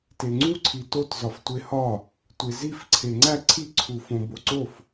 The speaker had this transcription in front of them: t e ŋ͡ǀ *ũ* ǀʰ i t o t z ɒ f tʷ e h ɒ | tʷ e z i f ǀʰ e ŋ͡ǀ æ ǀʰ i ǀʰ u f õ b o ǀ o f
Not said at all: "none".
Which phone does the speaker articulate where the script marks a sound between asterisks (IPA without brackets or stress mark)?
u